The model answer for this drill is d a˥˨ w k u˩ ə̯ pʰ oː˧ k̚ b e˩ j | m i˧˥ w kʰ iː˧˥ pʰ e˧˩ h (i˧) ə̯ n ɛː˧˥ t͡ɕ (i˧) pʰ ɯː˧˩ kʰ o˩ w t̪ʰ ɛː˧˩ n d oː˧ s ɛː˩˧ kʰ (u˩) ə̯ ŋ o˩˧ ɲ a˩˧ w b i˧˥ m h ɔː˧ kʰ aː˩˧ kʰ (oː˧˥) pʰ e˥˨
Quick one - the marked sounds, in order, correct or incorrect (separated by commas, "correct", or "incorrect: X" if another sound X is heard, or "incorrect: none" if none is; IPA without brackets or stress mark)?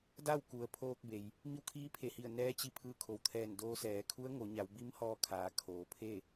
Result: incorrect: i˧˩, correct, incorrect: u˧˥, incorrect: oː˩˧